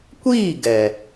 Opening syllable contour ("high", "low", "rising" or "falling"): falling